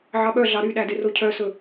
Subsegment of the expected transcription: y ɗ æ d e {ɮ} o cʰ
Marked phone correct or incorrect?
incorrect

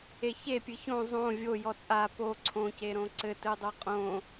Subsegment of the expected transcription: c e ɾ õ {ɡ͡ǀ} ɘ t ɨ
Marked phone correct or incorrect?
incorrect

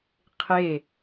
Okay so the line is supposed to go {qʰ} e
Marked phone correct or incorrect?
correct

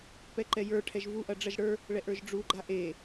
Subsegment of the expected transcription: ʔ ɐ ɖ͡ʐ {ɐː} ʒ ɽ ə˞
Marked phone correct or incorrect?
incorrect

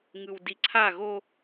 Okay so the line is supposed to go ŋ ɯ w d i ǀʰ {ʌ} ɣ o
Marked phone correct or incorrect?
incorrect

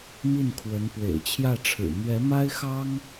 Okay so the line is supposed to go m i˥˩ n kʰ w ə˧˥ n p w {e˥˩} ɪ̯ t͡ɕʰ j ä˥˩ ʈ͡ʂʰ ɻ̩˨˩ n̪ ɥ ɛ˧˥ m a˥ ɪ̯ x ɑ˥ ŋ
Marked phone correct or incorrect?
incorrect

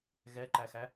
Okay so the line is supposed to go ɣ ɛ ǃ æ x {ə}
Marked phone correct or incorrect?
incorrect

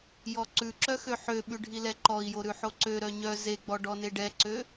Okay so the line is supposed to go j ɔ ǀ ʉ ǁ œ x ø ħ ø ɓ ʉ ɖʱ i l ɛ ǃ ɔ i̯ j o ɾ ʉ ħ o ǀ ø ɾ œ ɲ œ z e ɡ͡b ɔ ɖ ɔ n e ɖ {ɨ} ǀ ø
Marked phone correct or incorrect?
incorrect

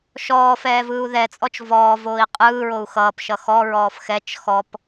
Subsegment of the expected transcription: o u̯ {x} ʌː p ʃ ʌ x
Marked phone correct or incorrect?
correct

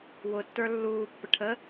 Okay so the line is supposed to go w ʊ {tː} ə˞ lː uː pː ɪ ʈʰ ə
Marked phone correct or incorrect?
correct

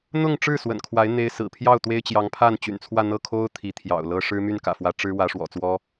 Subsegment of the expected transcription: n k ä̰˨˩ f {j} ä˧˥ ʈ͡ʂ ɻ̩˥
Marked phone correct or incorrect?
incorrect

